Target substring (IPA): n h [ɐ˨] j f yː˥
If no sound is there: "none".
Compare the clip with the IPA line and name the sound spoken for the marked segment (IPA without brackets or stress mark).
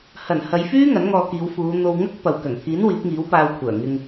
ɐ˨˧